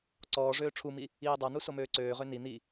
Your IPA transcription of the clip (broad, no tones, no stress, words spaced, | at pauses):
ǀɔːʐøː ʈ͡ʂʰumi | iːdˤan̪u somøːǀøːʁø ni n̪i